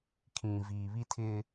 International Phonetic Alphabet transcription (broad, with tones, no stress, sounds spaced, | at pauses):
kʰ ĩ˨ v iː˨ β i˦ tʰ ɪ˦